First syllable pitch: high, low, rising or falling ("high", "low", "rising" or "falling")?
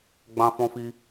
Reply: high